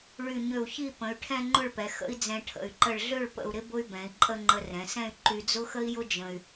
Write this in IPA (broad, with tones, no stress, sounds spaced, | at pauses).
ɭ y˧˩ ɲ ø˧˩ u̯ ç i˥˧ p ə̃˩˧ y̯ ʈʰ ɛ̃˥˧ ŋ͡ǃ ʊ˥˧ ɭ p ɛ˩˧ x ə̰˥ i̯ d͡z ɛ̃˧ ʈʰ ə̰˧˩ y̯ ǃ ə˧˩ ɭ ɮ ø˥˧ ɭ p ə̰˧˩ u̯ ɾ ɪ˥ b ʊ˥ y̯ b ɛ̃˩˧ i̯ ǃʼ ə˥˧ ŋ͡ǃ ə˧ r ɛ̃˩˧ s ɛ̃˥˧ y̯ ǃ y˧ d͡z ʊ˥ x ə˥ i̯ j ʊ˥ d͡ʒ ə̃˧ y̯